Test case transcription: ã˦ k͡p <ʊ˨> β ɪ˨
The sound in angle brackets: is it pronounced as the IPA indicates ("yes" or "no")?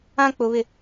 yes